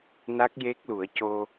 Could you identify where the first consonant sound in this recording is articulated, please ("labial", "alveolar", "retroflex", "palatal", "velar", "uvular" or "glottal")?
alveolar